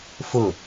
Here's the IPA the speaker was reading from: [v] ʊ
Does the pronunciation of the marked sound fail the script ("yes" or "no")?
yes